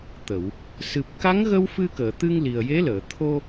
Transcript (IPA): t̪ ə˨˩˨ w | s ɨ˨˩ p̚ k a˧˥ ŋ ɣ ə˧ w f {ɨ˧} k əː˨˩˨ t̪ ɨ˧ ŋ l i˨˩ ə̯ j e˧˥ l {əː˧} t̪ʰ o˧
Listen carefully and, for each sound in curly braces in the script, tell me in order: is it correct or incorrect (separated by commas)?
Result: correct, incorrect